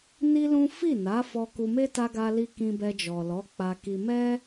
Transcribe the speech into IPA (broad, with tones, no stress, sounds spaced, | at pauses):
n i˦ l ũ˦ f i˦˨ n a˨˦ f ɔ˧ k u˧ m e˦ t a˧ ɡ a˧ l i˧ k ĩ˧ b ɛ˧ d͡ʒ ɔ˨ l ɔ˨˦ k͡p a˧ k i˧ m ɛ˦